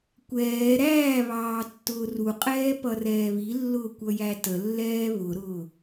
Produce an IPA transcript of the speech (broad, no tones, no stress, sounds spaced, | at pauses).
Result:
kʷ ɛː ɾ æː β ɑː tː ʊː r u qʼ ɛː p ʌ r ɛː β i lː ʊː kʷ ʌ j æ t ə lː ɛː β ʊ ɾ ʊː